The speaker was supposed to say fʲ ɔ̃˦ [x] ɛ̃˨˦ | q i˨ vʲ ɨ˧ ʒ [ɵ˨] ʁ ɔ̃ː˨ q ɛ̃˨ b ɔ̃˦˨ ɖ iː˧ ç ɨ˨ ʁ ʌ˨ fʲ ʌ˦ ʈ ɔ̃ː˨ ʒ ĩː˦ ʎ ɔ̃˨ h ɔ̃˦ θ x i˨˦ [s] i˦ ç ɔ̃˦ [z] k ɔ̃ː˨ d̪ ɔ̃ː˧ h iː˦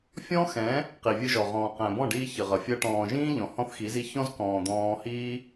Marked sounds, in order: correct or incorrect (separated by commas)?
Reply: correct, incorrect, incorrect, correct